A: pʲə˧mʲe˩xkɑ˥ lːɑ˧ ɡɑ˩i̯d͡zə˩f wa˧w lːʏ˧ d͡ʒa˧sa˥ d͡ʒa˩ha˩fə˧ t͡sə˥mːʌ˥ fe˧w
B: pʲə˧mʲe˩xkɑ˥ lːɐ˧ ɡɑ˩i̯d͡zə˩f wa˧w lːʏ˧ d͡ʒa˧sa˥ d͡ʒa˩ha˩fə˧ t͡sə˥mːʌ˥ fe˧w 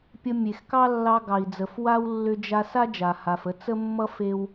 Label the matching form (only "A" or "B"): A